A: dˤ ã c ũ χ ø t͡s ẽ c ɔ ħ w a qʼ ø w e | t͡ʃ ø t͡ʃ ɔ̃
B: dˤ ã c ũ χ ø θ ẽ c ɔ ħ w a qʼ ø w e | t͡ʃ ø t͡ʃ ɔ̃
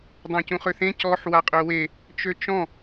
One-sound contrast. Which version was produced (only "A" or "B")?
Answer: B